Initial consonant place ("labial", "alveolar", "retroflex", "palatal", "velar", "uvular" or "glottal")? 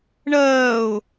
retroflex